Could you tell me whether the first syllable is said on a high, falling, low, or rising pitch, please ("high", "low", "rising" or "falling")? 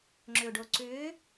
low